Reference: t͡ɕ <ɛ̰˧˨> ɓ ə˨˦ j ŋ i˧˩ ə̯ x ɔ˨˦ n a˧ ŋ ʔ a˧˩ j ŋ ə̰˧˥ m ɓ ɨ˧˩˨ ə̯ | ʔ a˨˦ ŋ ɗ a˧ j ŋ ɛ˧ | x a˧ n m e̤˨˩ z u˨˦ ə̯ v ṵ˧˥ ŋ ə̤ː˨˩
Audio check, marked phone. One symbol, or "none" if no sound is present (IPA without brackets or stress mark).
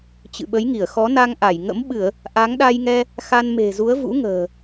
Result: ɨ̰˧˨